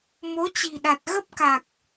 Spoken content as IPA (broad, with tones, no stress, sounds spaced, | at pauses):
m o˨˦ t͡ɕ i̤˨˩ ɗ a˨˩ t̚ ɣ ə˦˥ p̚ k a˨˩ k̚